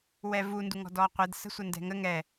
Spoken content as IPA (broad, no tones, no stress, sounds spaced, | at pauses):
w ɛ v u n d u ŋ ɔ̤ d ɔː qʷ ɛ d s ə̤ sʷ ɐ n d ɛ̤ ŋ ə ŋ ɛ